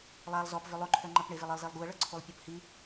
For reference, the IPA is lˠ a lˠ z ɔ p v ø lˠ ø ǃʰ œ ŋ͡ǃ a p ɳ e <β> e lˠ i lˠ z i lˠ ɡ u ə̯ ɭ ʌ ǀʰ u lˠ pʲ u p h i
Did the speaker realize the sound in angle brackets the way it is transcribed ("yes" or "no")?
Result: no